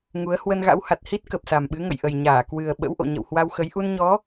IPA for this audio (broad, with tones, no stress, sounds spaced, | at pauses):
ŋ u˨˦ ə̯ h w ə˧ n ɣ a̰˧˥ w h a˨˩ t̚ h i˦˥ t̚ k ə˨˩ p̚ s a˨˩ m ɓ ɨ˨˦ ŋ ə̰˧˨ j ʔ ə˨˩ j ɲ aː˧˩ k w ɨ˨˩ ə̯ ɓ ə̰˧˥ w ʔ o̰˧˨ ɲ ə̰˧˨ w h w a˧ w x ə˨˦ j ʔ u˧ n ɲ ɔ˨˦